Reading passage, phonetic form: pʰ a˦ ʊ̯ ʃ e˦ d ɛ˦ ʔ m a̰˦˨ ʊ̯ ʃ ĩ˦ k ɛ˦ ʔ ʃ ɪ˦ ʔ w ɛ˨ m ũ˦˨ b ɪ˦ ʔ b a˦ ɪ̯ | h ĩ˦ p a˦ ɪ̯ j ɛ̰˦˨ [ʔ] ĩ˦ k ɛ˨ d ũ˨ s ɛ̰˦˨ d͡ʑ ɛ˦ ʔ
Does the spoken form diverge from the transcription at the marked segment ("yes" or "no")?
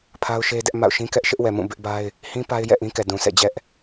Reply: no